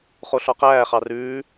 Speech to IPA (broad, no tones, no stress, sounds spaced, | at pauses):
χ o ɬ ɔ q æː χ ɑ r ʉː